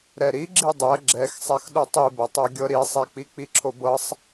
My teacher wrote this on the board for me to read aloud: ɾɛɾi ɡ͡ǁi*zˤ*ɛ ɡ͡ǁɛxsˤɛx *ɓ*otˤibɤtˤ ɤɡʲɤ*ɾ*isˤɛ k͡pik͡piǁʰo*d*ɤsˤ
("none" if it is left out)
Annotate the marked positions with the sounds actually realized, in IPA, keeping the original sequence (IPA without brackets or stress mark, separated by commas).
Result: dˤ, ɗ, ɾ, b